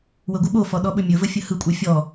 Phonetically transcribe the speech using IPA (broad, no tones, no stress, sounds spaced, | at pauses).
w ə ɡʷ ɯ ɓ o f ɔ ɗ ɔ ɓ ɵ mʲ ɵ v ə fʲ ə h ɯ kʷʼ a fʲ ɔ